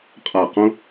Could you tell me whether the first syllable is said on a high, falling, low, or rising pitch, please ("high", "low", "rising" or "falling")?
falling